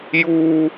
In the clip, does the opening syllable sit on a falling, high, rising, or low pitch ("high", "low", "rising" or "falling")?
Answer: high